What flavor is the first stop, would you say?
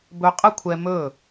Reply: plain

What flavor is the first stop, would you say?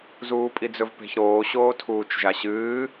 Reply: ejective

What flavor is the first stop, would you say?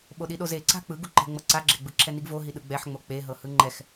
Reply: implosive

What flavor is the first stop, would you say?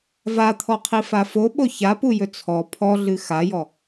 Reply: aspirated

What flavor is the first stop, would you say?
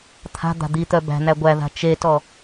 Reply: aspirated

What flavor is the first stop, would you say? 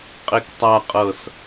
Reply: ejective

